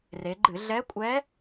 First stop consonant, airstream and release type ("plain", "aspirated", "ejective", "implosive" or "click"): click